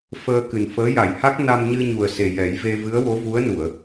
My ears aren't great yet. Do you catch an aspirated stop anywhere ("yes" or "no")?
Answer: no